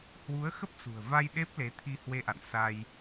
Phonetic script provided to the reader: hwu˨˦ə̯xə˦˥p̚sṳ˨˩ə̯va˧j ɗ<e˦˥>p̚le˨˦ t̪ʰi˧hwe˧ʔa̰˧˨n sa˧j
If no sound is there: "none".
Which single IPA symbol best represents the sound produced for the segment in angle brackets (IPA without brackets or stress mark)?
e˦˥